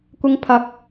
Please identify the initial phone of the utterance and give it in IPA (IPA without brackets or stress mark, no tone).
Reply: kʷ